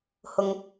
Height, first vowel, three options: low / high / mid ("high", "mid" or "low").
high